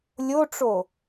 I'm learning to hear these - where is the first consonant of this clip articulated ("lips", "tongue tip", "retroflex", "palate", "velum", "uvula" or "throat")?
tongue tip